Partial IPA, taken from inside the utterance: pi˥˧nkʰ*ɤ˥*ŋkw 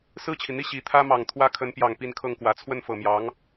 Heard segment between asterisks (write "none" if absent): ɤ˥˩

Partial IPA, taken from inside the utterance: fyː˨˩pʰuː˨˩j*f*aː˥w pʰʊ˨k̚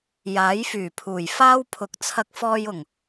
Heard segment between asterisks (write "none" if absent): f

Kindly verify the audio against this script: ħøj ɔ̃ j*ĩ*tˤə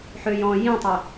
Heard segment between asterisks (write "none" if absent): ĩ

